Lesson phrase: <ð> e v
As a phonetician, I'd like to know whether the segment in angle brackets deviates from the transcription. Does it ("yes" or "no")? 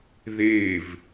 no